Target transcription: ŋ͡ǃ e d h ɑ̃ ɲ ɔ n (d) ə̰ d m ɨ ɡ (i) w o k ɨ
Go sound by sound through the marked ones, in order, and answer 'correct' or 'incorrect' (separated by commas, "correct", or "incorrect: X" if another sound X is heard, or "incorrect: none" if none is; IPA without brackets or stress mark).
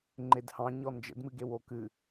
incorrect: d͡ʒ, incorrect: e